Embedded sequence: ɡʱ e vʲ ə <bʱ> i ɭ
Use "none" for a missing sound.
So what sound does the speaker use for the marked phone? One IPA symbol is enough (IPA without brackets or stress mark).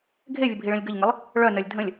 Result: bʱ